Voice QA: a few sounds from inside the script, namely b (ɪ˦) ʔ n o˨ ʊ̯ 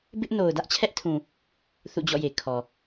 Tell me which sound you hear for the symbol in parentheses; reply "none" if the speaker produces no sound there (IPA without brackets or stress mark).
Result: ɪ˦